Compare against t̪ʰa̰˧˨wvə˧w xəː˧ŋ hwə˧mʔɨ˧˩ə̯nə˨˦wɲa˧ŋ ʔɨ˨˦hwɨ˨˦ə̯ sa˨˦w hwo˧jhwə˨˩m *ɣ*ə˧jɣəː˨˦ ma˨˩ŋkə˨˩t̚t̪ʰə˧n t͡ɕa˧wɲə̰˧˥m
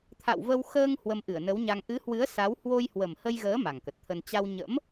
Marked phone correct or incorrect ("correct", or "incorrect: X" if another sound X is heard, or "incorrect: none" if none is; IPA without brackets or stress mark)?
incorrect: h